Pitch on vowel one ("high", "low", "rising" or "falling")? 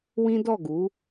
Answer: high